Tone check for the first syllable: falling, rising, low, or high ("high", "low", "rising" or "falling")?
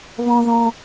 high